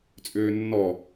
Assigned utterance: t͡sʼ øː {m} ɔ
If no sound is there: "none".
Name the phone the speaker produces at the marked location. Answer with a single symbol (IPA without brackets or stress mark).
nː